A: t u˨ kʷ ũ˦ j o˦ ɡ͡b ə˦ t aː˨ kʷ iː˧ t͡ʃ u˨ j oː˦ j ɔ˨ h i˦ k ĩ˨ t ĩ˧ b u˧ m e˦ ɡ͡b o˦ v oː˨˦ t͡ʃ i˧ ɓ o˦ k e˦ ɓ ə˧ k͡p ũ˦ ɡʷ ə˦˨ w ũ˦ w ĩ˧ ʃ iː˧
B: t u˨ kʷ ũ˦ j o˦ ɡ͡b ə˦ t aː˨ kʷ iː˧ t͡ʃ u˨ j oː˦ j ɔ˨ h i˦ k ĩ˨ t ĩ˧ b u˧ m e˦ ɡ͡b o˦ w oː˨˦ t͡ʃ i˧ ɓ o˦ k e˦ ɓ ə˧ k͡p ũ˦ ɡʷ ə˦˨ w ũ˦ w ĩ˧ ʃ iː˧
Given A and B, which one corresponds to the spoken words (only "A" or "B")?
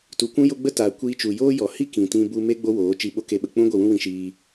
B